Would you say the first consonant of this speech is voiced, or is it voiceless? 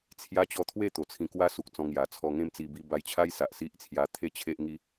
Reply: voiceless